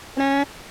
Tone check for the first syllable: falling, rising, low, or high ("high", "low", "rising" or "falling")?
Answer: high